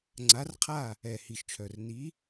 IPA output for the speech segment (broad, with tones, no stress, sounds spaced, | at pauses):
ŋ͡ǀ a˨˥ r qʰ a˥˨ | ɛ˨˩ h i˨˩ ʃ t͡ʃʰ œ˨˩ r n i˨˥